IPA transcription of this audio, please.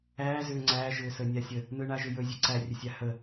æː zʏːŋ͡ǀæː ʒʏːsəːnʲasʲə | nɯɳaʒʏjɵ zʲɯǀæ rʲəsʲahə

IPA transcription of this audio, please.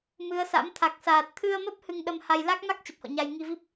mɨ˨˦ə̯sa̰˧˥m t̪ʰa˨˩k̚saː˨˩t̚ t̪ʰɨ˧ə̯mə˦˥p̚ hɨ˧ŋɗə˧mha˧j la˦˥k̚ma˦˥k̚ t͡ɕə˨˩p̚hɔ̰˧˨ɲa˧j ŋi˧vi˦˥p̚

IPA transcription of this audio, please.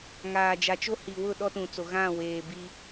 ŋaː˨d͡ʒa˨t͡ʃo˦hi˨ wʊ˦˨ ɗɔ˦tũ˨t͡so˨ ɣã˦˨weː˨ bi˦

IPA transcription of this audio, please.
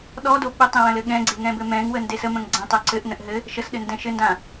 ɗɔdo ɓɘtˤẽwə̃lɘ ɠɛ̃ɡ͡ǀeŋɛ̃bɘ mɛ̃ŋwənde səmə̃ŋ ɡ͡ǀɛ̃tˤœ ǀɘʔnə̃ʔ ɦɘ | ʃəsɗɘndɛ̃ ʃɘndã

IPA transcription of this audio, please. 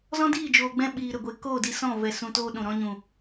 zɔ̃˦diː˦˨d͡ʒoː˨ɡ͡bɛ̃˧ ɓiː˨ɾə˨ɡʷe˨ koː˦˨di˧sɔ̃˦˨ vɛ˧ sũ˧toː˦ɗũ˨ɾɔ̃˦ ɲũ˨

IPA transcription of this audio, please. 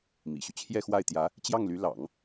mḭ˨˩ɕy˦ t͡ɕʰjɛ˥˧xwa˥˩ɪ̯t̪jä˧˥ | t͡ɕjɑ˥˩ŋly˧˥ lɑ̰˨˩˦ŋ

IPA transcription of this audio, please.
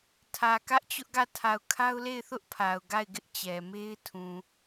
tʰä˨kä˦ʔt͡ɕʊ˦ʔɡä˦˨ tʰa˨ʊ̯kʰa˦ʊ̯le˦˨ɪ̯θʊ˦ʔ pʰa˨ʊ̯ɡa˦˨ɪ̯ɡɪ˦ʔ t͡ɕɛ˨ me˦ɪ̯tʰũ˨

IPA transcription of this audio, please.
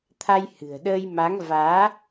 t̪ʰa˧jhɨ̤˨˩ə̯ɗəː˧jma˨˦ŋ vaː˨˦

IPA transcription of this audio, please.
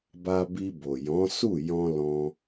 ba˧bi˧bo˨jɔ̃˨˦ su˦˨jɔ̃˧ lɔ̃˧

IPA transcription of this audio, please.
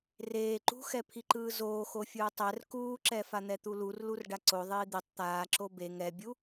reː ǃṳxɛ pʰiǃɯːzoːxo fʲɯːtˤɛr kuːǁɛfan̪ɛ t̪ulurlur ɖaǀoðˤiː d̪itˤ t̪aː ǁobe ŋɛbʲu

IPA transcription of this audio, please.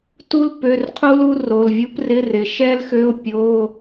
tu˥l pø˧˥˧rqʰu˥lu˥ ro˧˥˧l vʲu˥prɪ˧˥˧rɪ˨˦ ʃɛ˥lxø˧˥˧ʊ̯ pʲo˧˥˧

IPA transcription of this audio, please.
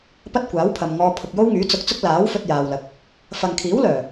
pɐ˥t̚kʷaː˨˥wpʰɐ˨mŋɔː˧ pʰʊ˨k̚jo˥wŋyː˨˥ t͡sʊ˧k̚t͡sʊ˥k̚ laː˨˥wfɵ˧t̚ jaː˨wlɐ˨k̚ | fɐ˨ŋkʰiː˨˥wlœː˨˩

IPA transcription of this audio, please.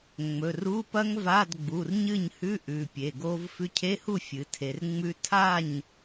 ŋ͡mɵ˩˧˩ru˧˥˧pɐ˦˥ŋ va˧˥˧dɡ͡bu˩˧˩rɲɨ˥˩ɲhʉ˧˥˧ ʔʉ˩˧˩pʲe˩˧˩ɡo˦˥v fʉ˧cʰe˧˥˧hu˥˩ fʲɨ˩˧tʰe˩˧rŋ͡mʉ˦˥ tʰa˥˩ɲ

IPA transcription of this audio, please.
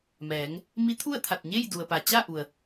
mɛː˩˧ŋ | mi˧˥t̪ʰu˥˨ə̯t̪ʰa˧˩t̚ɲe˥˨j du˩ə̯pa˩ t͡ɕa˥˨ ʔu˩ə̯

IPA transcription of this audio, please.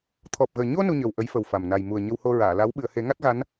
t̪ʰɔ˨˩p̚ɣəː˨˩ ɲo˧ nu˧ɲə˨˩w ʔə˧˥jfə˨˩wfa˨˩m na˨˩j mu˨˩ə̯ ɲə˧who˧ ɹaː˨˩˨la˧˥w ɓɨ˨˩˨ə̯he˨˩˦ŋa˦˥t̚ɣa˧˥n

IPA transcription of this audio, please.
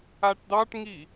aʈdɑʈŋi

